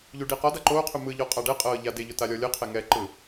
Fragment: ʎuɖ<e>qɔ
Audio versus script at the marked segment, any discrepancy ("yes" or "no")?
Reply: yes